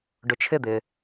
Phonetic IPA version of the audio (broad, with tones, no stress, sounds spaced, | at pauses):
ɖ ʊ˩ t͡ʃʰ ɪ˧˩ d̪ ɪ˩